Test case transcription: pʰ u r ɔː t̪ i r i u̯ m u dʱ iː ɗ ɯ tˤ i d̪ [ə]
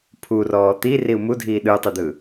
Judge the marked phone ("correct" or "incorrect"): incorrect